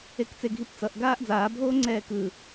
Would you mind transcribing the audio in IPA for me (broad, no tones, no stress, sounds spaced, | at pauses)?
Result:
e k t͡s e ɡʱ i p t͡s ʌ ʔ ɡ aː ʔ d͡z aː bʱ oː ŋ͡ǀ ɛː k ɯ